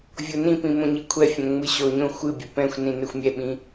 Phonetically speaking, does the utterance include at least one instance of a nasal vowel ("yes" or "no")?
yes